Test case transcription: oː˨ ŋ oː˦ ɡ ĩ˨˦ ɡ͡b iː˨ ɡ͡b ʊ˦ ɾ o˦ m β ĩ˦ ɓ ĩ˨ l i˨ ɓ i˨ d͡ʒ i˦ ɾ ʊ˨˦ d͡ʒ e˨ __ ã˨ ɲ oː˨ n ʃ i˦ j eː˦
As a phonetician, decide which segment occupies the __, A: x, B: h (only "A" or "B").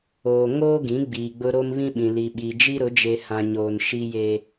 B